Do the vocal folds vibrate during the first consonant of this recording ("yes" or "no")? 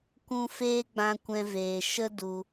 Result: no